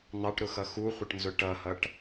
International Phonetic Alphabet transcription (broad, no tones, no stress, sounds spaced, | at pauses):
n̪ ɑ ʈ ɾ ʊ x ʌ x u χʷ ə ʈ n z ʊ ʈ ʌ h ʌ ʈ